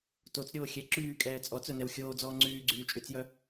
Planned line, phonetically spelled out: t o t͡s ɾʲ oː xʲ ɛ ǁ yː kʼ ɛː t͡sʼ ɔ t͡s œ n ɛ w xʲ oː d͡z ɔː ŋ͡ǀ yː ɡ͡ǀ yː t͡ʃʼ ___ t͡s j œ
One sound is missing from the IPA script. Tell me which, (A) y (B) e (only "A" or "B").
A